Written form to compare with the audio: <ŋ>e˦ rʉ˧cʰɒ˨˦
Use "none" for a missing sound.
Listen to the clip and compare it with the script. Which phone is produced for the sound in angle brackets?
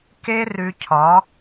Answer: k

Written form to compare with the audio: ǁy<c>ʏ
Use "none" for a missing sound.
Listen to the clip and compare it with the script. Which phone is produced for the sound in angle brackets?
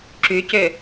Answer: c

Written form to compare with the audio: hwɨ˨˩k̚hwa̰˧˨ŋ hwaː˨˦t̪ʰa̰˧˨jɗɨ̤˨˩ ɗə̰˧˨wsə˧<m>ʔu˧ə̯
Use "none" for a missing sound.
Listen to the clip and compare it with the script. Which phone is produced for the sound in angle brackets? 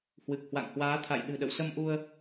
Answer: m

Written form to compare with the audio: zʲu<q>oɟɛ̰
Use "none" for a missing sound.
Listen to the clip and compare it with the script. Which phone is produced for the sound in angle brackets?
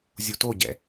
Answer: t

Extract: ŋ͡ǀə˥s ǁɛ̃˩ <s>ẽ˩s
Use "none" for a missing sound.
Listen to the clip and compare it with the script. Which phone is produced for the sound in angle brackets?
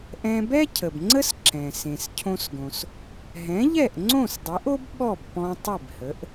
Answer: s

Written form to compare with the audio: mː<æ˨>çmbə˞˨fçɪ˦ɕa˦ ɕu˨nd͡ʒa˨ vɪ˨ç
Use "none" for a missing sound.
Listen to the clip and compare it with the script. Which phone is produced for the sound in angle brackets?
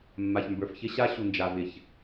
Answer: a˨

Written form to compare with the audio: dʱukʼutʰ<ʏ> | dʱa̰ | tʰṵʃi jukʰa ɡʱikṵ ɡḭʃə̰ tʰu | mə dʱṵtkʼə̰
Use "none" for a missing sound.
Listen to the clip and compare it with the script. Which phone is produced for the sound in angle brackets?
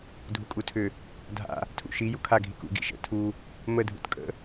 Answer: ʏ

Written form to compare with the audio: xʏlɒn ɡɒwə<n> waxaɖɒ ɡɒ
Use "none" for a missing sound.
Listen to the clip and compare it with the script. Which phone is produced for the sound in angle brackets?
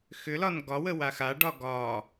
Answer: none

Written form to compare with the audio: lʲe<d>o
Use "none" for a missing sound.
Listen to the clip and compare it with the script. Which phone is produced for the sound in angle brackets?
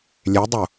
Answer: dˤ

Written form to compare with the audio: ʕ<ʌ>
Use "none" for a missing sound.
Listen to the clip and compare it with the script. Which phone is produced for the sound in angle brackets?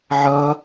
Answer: ʌ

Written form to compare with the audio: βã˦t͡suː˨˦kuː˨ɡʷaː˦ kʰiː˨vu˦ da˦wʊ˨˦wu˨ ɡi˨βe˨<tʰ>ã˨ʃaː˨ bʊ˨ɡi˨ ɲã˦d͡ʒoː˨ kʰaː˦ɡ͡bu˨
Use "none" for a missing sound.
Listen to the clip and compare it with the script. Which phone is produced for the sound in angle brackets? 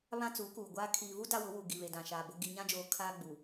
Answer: d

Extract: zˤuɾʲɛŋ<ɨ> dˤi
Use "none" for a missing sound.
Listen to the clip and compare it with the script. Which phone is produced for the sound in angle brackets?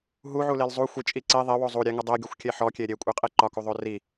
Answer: ɨ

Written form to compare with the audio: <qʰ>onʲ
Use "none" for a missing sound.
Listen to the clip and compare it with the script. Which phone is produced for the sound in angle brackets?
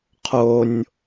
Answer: qʰ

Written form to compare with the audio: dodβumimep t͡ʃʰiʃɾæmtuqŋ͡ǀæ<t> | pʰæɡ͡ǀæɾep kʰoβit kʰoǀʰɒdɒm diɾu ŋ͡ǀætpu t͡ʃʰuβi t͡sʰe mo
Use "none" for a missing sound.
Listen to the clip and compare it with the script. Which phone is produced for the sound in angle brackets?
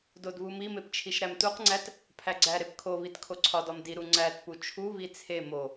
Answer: t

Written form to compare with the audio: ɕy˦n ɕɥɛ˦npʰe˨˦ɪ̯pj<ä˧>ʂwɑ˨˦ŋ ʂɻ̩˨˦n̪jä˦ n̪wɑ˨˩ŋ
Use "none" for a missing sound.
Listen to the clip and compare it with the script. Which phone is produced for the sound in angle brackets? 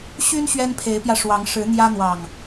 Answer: ä˧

